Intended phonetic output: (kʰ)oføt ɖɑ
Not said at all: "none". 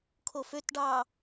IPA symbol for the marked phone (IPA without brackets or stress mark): kʰ